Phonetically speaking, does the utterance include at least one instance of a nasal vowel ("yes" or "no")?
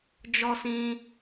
yes